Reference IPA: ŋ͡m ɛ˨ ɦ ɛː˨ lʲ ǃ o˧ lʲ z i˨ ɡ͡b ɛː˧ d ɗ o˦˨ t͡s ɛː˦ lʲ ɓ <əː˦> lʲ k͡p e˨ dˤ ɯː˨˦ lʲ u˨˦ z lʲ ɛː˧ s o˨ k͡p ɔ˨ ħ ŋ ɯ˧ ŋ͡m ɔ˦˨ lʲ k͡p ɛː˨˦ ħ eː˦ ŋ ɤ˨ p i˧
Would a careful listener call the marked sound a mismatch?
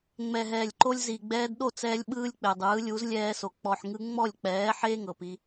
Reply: yes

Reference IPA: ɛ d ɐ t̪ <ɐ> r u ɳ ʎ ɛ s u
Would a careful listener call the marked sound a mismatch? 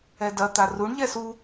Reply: yes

